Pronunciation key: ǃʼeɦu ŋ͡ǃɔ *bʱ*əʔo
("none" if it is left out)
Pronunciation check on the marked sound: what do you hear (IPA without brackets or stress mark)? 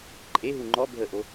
bʱ